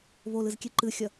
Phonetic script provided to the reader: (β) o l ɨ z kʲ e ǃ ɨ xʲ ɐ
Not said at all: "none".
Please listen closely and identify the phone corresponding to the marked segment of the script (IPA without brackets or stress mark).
β